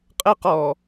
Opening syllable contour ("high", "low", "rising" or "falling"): high